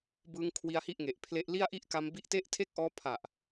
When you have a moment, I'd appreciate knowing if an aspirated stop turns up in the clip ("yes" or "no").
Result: yes